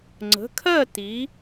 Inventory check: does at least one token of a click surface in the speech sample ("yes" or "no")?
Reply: yes